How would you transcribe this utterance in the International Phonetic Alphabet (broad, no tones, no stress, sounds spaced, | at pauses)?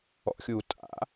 ɔ̰ xʲ uː tʼ a̰